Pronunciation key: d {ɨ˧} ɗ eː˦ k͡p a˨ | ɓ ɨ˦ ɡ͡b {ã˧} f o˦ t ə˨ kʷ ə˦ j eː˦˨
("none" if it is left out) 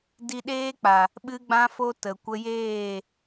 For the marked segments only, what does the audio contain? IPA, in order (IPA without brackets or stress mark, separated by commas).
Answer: i˧, ã˦